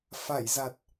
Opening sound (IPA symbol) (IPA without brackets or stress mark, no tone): f